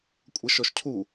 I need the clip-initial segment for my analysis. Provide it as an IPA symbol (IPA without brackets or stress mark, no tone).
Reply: kʷʼ